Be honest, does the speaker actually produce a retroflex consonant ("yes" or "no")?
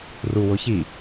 no